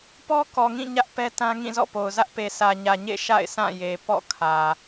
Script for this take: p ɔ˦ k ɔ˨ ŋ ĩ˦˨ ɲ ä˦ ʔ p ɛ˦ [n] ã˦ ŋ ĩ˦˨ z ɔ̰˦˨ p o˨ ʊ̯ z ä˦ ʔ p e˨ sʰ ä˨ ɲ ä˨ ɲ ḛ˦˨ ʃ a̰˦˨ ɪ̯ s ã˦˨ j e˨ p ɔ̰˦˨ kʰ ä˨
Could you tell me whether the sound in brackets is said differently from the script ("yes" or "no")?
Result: yes